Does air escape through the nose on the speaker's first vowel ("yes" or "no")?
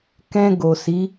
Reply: yes